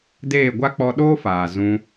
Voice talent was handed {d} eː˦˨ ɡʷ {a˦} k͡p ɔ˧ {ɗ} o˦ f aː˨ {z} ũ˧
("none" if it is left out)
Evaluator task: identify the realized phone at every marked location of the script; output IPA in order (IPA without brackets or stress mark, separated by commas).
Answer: d, a˦, ɗ, z